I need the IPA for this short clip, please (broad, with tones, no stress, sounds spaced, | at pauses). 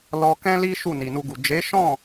l ɔ˧ k ɛ̃˦ l i˦ ʃ u˦˨ n i˨ n u˧ ɡ u˨ d͡ʒ e˨˦ ʃ ɔ̃˦˨